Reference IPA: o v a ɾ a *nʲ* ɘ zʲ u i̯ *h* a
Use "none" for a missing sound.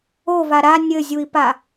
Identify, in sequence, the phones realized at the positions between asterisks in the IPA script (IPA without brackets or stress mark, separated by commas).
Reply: nʲ, p